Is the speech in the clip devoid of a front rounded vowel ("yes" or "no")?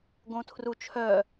no